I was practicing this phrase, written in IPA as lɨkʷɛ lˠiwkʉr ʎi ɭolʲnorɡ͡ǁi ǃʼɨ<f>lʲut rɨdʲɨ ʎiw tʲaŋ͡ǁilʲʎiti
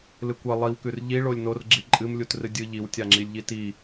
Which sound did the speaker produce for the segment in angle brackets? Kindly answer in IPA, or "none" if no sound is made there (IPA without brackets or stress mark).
m